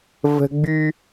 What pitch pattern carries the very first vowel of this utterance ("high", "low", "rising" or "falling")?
high